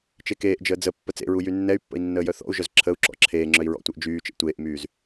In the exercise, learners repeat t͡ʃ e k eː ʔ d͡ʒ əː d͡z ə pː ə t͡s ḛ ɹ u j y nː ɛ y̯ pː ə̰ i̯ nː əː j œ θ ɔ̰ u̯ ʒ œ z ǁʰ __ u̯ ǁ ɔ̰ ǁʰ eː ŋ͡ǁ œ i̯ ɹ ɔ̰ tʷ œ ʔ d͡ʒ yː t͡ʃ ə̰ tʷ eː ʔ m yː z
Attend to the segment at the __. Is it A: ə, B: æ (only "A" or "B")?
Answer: A